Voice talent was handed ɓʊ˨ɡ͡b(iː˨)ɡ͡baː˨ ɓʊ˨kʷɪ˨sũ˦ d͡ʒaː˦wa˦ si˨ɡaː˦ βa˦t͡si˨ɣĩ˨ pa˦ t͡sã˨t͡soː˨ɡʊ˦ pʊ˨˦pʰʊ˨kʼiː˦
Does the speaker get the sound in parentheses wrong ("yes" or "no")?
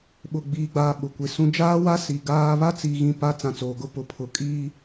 no